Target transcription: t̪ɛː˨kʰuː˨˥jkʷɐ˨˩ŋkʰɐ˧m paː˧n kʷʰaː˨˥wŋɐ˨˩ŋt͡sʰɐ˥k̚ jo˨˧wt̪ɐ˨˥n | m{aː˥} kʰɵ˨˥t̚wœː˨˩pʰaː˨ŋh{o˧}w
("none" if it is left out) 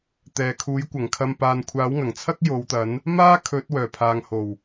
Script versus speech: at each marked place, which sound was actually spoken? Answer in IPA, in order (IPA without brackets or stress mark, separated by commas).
aː˥, o˨˩